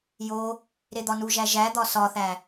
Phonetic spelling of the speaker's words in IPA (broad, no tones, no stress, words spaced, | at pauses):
jo | ɾed̪ɒnuʒæ ʒæd̪ɒ sɒθæ